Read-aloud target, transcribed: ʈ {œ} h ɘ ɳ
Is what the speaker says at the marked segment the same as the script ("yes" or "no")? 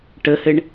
no